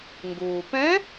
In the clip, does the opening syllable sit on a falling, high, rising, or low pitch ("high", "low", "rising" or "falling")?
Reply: low